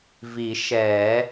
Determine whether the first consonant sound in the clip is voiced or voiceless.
voiced